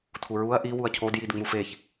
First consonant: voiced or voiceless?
voiceless